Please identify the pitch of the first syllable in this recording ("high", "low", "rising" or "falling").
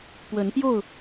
rising